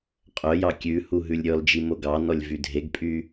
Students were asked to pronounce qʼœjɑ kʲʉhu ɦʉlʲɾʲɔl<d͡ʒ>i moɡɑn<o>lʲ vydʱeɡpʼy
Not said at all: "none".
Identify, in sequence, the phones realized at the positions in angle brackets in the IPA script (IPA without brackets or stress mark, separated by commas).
d͡ʒ, ɔ